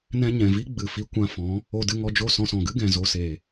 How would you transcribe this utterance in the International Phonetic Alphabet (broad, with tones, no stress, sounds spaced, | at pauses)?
n ɛ̃˧ ɲ ɛ̃˨ v i˦ ɡ͡b ɨ˨ f i˧ kʷ ã˧ f ɔ̃˨˦ | o˧ d ɨ˧ ŋ ɔ˧ d͡ʒ o˦˨ s ɔ̃˧ s ɔ̃˨ ɡ ɨ˦ ɡ ɛ̃˨ z o˧ s e˨